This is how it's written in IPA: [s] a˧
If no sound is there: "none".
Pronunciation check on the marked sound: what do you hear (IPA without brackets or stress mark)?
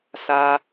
s